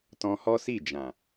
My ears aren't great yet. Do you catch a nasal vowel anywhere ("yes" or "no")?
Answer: yes